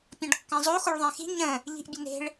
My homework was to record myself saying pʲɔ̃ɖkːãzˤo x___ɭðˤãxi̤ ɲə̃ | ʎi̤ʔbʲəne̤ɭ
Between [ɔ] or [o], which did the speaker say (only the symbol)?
o